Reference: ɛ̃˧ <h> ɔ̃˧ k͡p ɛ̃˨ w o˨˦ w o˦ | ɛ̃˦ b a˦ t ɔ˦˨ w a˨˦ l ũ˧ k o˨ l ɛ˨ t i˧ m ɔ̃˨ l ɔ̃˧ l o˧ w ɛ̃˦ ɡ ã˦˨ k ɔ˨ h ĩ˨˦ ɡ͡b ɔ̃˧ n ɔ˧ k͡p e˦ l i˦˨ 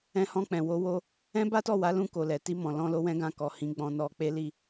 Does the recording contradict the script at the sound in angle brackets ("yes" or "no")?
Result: no